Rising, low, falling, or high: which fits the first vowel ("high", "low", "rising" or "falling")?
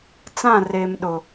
falling